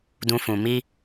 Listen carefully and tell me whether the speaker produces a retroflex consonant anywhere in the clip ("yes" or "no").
no